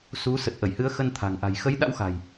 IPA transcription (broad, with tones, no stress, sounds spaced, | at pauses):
s u˨˦ s ə˨˩ t̚ ʔ ə˧˩ j h ɨ˨˦ ə̯ x ə˧ n t̪ʰ a̤˨˩ ŋ ʔ a̤˨˩ j x ə˨˦ j ɗ a̰˧˥ w x a̤˨˩ j